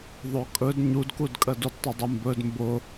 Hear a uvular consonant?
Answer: no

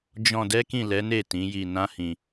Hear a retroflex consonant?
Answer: no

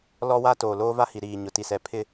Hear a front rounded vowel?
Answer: no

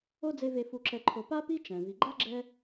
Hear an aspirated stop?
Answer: yes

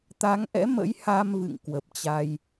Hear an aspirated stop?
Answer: no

